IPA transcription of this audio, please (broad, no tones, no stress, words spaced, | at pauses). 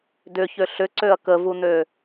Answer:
dʏçø ɬʏǀøɐ̯ kəvun̪ø